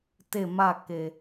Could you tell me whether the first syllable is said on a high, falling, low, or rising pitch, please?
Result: falling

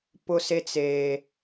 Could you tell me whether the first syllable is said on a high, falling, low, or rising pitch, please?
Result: high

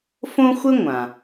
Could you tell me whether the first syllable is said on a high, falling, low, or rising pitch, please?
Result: high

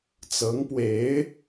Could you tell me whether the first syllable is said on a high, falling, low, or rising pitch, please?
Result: rising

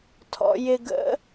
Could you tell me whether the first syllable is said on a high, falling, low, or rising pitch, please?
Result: low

